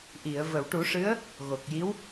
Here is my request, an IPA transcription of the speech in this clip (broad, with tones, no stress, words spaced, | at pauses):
ʔi˨˩˨ə̯ və˨˩˨wʈu˨˩˦ʂɨ˧˥ə̯ | ɣo˨˩k̚ji˧˥w